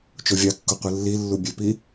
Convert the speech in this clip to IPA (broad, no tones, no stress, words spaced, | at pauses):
t͡ʃovʲɑkːo qʷɯlːilːu bʲøpi